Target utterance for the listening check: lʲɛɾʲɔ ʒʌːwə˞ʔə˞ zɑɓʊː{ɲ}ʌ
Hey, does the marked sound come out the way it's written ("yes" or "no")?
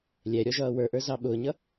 yes